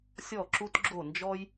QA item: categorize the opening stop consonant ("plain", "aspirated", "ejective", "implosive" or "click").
click